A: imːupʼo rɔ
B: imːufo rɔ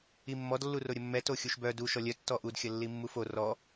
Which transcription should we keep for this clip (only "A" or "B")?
B